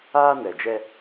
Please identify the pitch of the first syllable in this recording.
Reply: high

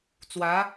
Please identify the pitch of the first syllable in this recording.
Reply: rising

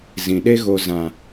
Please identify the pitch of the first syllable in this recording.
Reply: low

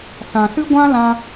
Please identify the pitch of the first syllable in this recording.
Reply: low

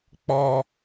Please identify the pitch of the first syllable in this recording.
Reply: high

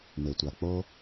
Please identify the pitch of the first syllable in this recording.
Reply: low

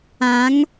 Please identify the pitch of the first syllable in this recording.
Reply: rising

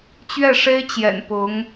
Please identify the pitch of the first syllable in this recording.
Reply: falling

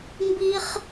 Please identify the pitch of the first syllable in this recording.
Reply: high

